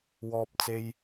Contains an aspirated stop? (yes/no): no